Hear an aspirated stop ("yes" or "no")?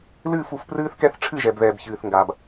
yes